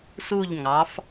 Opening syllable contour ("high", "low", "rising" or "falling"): falling